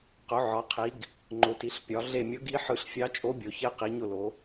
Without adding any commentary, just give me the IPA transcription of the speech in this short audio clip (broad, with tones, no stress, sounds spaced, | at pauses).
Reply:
q ʊ˩˧ ʕ ɒ˩˧ qʰ i˩˧ ɡ | ŋ͡ǃ ʊ˩˧ t i˩˧ ɬ pʲ ɒ˩˧ ɮ e˧˩ mʲ ʊ˧˥ ɡ i˧˥ ħ ɯ˧˩ ɬ fʲ ɑ˧˥ t͡ʃʼ o˧˥ bʲ o˩˧ ç e˧˥ q i˩˧ ɲ ʊ˧˩ l o˩˧